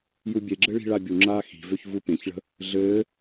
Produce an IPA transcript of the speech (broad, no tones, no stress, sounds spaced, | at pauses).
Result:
j u bʲ e ɡ͡ǁ ɘ ɭ i̤ ɭ a bʲ u ŋ͡ǁ aː x i̤ v ø ç v u p ẽ ç ɭ ə̤ | ɮ ɘː